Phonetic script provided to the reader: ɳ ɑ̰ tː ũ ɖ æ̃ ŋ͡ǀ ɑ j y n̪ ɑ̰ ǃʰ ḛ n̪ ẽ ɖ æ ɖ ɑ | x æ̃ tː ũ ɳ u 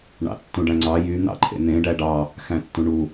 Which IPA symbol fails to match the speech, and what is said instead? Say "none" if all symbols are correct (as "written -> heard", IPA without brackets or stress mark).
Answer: none